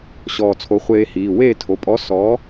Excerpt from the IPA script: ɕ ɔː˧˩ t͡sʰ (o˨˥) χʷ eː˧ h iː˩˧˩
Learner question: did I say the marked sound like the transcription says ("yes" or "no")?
yes